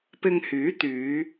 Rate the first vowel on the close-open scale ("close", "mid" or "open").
close